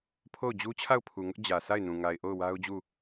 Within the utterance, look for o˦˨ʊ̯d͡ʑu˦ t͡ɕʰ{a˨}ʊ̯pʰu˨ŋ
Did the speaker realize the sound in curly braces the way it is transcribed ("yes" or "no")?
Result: no